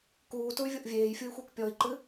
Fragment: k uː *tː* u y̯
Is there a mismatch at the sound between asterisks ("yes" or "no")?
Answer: yes